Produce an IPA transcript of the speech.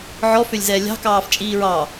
ʕ ɔ f ø lʲ z ɛː lʲ ɑ̤ k ɑː f t͡ʃʼ iː ɹ ɑ

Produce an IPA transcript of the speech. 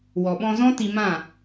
w ɔ˨ ɓ ɔ̃˧ z ɔ̃˦ t i˧ m ã˦˨

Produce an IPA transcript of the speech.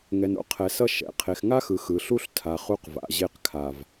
ŋ ɛ˨ n o̰˦ qʰ ɛ˨ s ʌ˦ ʃ ɛ̰˨ qʰ e˨ x ŋ a˦ x ɯ˨ x ɯ˨ ɬ u˦ ɬ tʰ a˨ χ u˦ q v a̰˨ ʑ e˦˨ q kʰ a˨ v

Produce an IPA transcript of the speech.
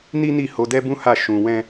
n i˦ n i˦˨ h o˧ d ɛ˦ b ũ˦ h a˦˨ ʃ ũ˧ w ɛ̃˦

